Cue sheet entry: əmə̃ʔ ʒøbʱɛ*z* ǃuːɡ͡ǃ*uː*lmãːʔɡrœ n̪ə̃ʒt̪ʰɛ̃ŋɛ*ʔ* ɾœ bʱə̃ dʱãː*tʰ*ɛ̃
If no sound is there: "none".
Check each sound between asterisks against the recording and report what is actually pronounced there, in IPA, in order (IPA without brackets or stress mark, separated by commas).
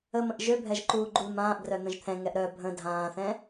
ʒ, u, ʔ, θ